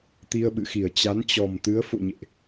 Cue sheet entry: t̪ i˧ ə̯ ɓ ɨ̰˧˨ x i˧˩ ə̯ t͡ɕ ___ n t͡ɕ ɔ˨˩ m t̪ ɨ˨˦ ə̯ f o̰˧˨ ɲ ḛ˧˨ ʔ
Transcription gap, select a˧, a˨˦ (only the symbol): a˨˦